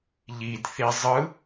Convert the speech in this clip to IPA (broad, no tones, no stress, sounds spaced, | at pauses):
ʎ i d θ i zˤ ɯ